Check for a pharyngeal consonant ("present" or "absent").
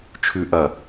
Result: absent